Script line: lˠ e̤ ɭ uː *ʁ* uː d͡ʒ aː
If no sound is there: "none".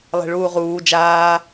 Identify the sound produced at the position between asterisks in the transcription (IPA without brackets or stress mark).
ʁ